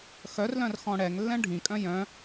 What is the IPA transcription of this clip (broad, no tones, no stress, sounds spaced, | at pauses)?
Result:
x œ r l œ̃ r x ɔ̃ ɽ ɛ ŋ lː ɛ̃ ɖʱ ĩ kʼ œ̃ j œ̃